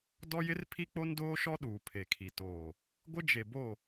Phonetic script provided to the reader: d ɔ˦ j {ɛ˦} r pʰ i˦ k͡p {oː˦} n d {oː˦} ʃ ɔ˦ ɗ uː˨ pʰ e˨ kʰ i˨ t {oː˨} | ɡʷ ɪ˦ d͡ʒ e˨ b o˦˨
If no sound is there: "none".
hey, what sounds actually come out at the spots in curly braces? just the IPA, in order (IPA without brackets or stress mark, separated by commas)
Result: ɪ˦, o˦, oː˦, oː˨